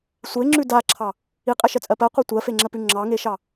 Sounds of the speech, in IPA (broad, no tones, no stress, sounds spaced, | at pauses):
sʷ e ŋ͡ǁ ʉ d a ǁʰ ɑ | i qʼ ɛ ʃ ɜ t͡sʼ ɜ p ɜ qʷ a tʷ ɜ f e ŋ͡ǁ ɜ p ʉ ŋ͡ǁ ɑ ŋ e ʃ ɑ